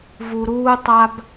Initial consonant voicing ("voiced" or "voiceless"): voiced